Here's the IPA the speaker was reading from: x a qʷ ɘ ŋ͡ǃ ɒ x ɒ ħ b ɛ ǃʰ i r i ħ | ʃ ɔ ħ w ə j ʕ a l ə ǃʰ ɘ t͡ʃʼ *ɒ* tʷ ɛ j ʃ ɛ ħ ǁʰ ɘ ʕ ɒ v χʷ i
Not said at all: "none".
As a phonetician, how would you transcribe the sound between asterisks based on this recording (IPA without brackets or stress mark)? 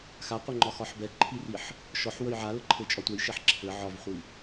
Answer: ɒ